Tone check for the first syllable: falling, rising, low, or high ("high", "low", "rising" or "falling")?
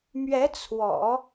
rising